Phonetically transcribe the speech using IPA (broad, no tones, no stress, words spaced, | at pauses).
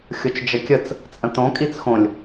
xʲot͡ʃd͡ʒəkʲət͡s | t͡sʼə̃tõ kʼit͡sxõlʲ